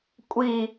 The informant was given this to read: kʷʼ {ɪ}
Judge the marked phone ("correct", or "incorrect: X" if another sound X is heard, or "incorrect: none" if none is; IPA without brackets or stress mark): incorrect: i